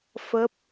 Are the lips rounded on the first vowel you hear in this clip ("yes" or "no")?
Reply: no